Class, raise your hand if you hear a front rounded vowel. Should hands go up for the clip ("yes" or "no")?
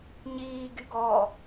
yes